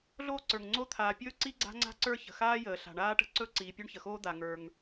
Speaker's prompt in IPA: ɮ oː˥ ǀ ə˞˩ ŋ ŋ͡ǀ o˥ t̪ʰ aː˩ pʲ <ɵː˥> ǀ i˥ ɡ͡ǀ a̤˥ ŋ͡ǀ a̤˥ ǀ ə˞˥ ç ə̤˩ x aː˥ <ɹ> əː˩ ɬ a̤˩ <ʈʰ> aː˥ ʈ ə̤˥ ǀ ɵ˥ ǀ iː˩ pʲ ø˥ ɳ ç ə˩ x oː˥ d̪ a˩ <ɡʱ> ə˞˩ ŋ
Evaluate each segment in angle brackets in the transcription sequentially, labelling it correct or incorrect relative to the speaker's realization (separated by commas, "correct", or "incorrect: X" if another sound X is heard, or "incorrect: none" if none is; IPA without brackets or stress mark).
correct, incorrect: j, incorrect: ɳ, incorrect: ŋ